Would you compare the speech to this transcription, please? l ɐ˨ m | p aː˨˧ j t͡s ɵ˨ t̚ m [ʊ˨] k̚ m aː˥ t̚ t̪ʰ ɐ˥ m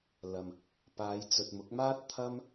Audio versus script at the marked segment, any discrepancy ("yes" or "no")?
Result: yes